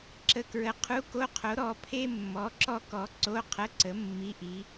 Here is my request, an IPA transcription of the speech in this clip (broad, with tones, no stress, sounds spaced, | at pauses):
ǁ ə˧˥˧ k ɹ ə˨˥ qʰ u˧˥˧ k o˧˥˧ qʰ o˨˥ ɾ ɔ˨˥ pʰ e˥ mː ɔ˨˥ ǁ ɔ˥ k ɔ˨˥ ǀ o˧˥˧ qʰ ə˧˥˧ ǀ ə˨˥ mː i˧˥˧ ʔ i˨˥